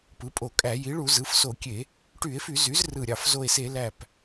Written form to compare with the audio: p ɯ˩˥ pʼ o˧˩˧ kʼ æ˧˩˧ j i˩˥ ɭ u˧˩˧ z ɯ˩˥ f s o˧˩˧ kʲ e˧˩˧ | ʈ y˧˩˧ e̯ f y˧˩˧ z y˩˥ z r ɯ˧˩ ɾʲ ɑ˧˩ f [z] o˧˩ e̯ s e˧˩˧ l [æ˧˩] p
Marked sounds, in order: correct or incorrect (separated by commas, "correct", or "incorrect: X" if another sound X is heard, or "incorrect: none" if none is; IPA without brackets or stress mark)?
correct, correct